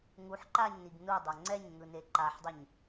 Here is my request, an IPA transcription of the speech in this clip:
ŋuħǃaɲniɡ nudˤo ŋ͡ǀɛɲŋɯne ǃaħdˤiɲ

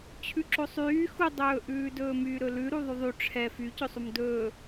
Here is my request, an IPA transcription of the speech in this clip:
t͡ɕʰʉǁosˤyː xudˤɵːʔʉːdɵː myːɾɵlʉ ɾuðˤyðˤy ʈ͡ʂʰɛ fycɵsˤum dɵː

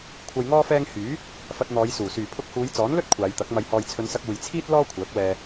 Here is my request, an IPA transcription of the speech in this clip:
kʷʰɐ˧jŋɔː˥fɛː˥ŋ hyː˨˥ | fɐ˧t̚n̪ɔː˨˧jsuː˨˩ syː˨˩pʰʊ˧k̚huː˨˧j t͡sɔː˨˥nlɵ˥t̚ kʷʰaː˨˧jt̪ɐ˨˥k̚ mɐ˨jhɔː˨jt͡sʰɵ˨˧nsɐ˧k̚ uː˨jt͡sʰiː˥t̚ lɔː˥kʷʰœː˨˥k̚ wɛː˧

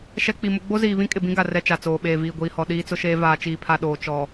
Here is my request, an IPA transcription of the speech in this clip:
ʃɛ˦ k͡pi˨mʊ˦ ɡ͡bo˦ziː˨βĩ˦kʼɪ˨ bĩ˦ɡa˨ rɛ˦t͡ʃa˨t͡soː˨ ɓeː˨viː˨ɡʷiː˨hɔ˨ ɗiː˦t͡sʊ˦ʃeː˦ vaː˨t͡ʃiː˨pʰa˨ ɗoː˨ t͡ʃɔ˨

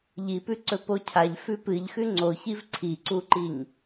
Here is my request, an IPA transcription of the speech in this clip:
ʎipʉǀɵ pocʰaʎ fʉpɨʎ xʉŋ͡ǀoçiv ǀʰiǀuǃiɲ

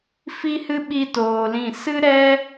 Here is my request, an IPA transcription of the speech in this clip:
fi˦hɨ˦ ɓi˦toː˧lĩ˦˨ sɨ˦ɾɛ˦

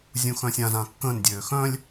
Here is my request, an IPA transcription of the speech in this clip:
zʲũxœ̃sʲãzã kːə̃ːndʲøː xœ̃lʲ

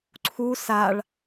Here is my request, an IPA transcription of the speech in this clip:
ǀʰu saɭ

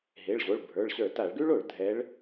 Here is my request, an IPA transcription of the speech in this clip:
ɦe˩˧˩ɭʑo˩˧˩ɭbʱə˞˩˧˩ɭɕə˞˧˩˧ ta˧˩˧ɭɡʉ˥ɭo˧˩˧ɭ dʱɛ˨˦ɭ

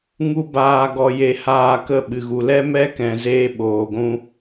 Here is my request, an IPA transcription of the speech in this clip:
ŋu˦baː˧ ɡɔ˧je˧haː˧ kə˦˨ ɓɨ˨ɣu˨lɛ˦ mɛ˦kɛ̃˨zeː˧ ɓoː˨ɡʷũ˦

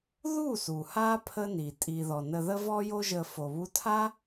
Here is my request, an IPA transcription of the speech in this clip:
ðu˦˨su˨ ha˦ pʰə˦ni˨ tʼi˨ðɔ˨ nə˧ ðə˦vɔ˦jo˦ʒə˧ fo˨βu˧tʰa˦

